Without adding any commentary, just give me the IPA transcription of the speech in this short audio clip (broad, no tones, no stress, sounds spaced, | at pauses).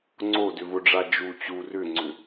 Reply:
ŋ͡ǀ o d ʏ v ʊ ɖ͡ʐ a d͡ʒ u t͡ɕ u r ʏ ŋ͡ǀ ʏ